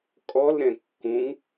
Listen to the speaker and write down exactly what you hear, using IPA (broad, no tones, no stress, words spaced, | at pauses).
kʼɔlɾɛ̃ kːũŋ